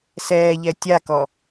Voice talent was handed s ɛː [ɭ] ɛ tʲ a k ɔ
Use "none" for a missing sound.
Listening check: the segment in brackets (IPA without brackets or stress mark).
ʎ